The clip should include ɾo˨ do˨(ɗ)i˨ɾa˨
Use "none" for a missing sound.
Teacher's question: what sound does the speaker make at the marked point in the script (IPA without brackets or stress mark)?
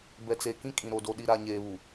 ɗ